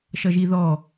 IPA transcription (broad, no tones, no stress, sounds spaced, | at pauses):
ʃ ʌ ʒ i ð ɔ